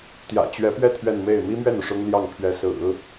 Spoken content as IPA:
t̪ j ä̰˨˩ t͡ɕ ɥ ɛ˧˥ p ɥ ɛ˥˧ t̪ʰ ɥ ɛ˥˧ n m e˥˩ ɪ̯ m i˥ m ɥ ɛ˥˩ n u˩ ʂ ʊ˥ ŋ l j ɑ˥˩ ŋ pʰ ɥ ɛ˧˥ s ɹ̩˨˩˦

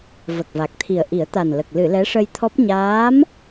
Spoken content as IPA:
v ə˨˩ k̚ v a˨˩ k̚ t̪ʰ i˨˩ ə̯ ʔ i˨˩˦ ə̯ t̪ a˨˩ n l ə˨˩ k̚ l ɨ˨˩˨ l ɛ˧˥ ʂ ə˧ j t̪ʰ ɔ˦˥ p̚ ɲ aː˧˥ m

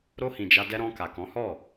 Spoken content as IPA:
ɾ o˧ h ĩ˨ d͡ʒ a˧ d ɛ˧ ɾ ɔ̃˧ k a˨ k ɔ̃˨˦ h ɔ˦˨

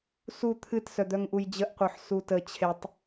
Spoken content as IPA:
s u t̪ʰ ɨ t s œ d̪ œ ŋ ʔ u j d͡ʑ ə ʔ qʷ œ ħ s u t ə t͡ɕʰ e tˤ

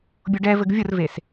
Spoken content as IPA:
bʲ ʊ ɖ ɛ v ɘ ɡ vʲ ʊ r v e s

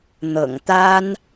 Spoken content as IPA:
n̪ ɤ̰˨˩ ŋ t̪ a˥ n

